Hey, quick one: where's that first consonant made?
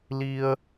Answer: tongue tip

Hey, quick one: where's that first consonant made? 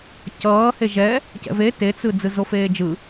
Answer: palate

